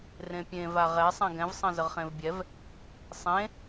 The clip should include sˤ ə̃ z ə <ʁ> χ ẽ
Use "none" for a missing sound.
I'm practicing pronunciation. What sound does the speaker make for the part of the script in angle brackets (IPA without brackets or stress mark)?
ʁ